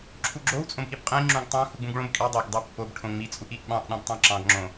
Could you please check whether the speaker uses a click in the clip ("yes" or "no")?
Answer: yes